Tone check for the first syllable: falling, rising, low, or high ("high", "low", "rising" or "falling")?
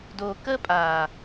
low